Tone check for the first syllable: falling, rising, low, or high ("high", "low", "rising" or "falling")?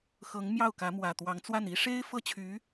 rising